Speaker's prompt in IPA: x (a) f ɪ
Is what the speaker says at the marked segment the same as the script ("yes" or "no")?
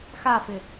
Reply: yes